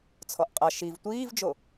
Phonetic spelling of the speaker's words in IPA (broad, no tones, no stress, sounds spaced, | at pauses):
t͡sʰ ɔ ʔ qʼ ɐ ʃ i v tʷ iː v d͡ʒ o